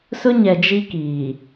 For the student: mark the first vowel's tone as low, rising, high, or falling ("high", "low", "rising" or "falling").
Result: high